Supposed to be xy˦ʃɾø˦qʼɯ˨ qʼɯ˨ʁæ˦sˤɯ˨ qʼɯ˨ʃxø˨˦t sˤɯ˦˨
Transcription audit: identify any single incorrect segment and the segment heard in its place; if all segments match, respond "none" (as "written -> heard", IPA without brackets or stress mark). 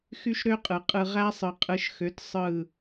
none